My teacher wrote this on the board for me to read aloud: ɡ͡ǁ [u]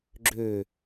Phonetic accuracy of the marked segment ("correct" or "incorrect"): incorrect